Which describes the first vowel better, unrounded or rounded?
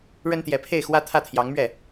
unrounded